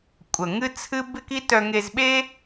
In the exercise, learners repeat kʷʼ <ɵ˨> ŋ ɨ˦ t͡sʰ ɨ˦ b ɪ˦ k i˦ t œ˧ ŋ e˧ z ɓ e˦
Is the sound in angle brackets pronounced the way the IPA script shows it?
no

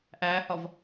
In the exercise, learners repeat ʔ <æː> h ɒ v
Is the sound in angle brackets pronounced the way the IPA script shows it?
yes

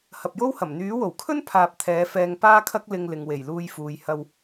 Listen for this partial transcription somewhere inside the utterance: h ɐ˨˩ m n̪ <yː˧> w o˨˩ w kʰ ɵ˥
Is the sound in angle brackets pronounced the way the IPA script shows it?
no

